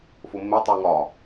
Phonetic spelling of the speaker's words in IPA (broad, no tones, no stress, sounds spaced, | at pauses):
f o mː e tˤ u ŋ ɒ